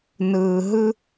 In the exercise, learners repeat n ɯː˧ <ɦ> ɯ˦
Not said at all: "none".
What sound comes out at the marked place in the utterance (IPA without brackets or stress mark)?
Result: ɦ